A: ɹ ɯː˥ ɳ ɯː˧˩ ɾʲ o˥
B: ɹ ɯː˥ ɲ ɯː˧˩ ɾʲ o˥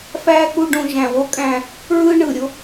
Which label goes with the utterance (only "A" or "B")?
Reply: A